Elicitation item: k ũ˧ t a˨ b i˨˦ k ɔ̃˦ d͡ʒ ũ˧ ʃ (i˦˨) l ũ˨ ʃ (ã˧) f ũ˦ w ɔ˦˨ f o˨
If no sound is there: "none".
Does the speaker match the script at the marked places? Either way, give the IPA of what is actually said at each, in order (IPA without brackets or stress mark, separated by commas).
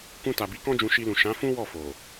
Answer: i˧, ã˨˦